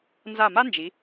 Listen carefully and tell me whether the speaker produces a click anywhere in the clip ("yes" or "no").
no